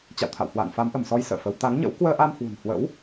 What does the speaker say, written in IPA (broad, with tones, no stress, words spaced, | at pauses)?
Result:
t͡ɕa̰˧˨wt̪ʰa̰˧˨whwa̰ː˧˨n fa˨˦mʔə˧˩msɔ˧j sə̰ː˧˨fə˨˦w t̪a˨˦ŋɲə̰˧˥w kwəː˧ʔa˧mhwṳ˨˩n hwə̰˧˥w